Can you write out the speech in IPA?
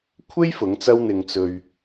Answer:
kʷʰ e˥ j f ʊ˨˥ ŋ t͡s ɐ˥ w n̪ ɪ˨ ŋ t͡s ɵ˨ ɥ

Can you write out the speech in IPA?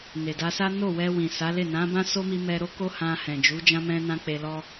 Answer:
n e˨ d a˧ s a˦ n o˦˨ w ɛ˧ w ĩ˨ s a˨˦ l e˦˨ n ã˨˦ b ã˦ s o˦ m i˧ m ɛ˧ ɾ o˦ k o˦ h ã˧ h ɛ̃˨ d͡ʒ u˨˦ d͡ʒ ã˧ m ɛ̃˧ n ã˧ k͡p e˧ l ɔ˦

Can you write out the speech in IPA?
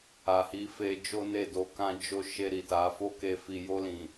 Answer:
a˨ h i˨˦ f e˧ d͡ʒ o˦ n e˦˨ d o˧ k ã˧ d͡ʒ o˧ ʃ e˧ ɾ i˨ t a˨˦ f o˦ k e˧ f i˨ j o˧ l ĩ˨

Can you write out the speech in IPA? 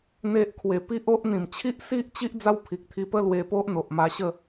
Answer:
n̪ e˦ ʔ kʰ w e˧ p i˦ ʔ o˦ ʔ n̪ ĩ˨˩ m t͡ɕʰ i˦ ʔ s i˦ ʔ t͡ɕ i˦ ʔ d͡z a˦ w pʰ i˨ k̚ t̪ʰ i˧ p ə˦ l w e˧ p o˦ ʔ n̪ o˨ ʔ m a˧ ɕ ə˥˧

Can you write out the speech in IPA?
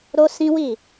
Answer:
ɾ o˦ s ĩ˦ w i˦˨

